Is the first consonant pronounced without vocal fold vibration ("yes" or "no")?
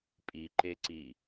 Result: yes